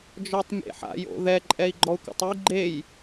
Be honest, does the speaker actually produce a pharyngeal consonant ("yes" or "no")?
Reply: yes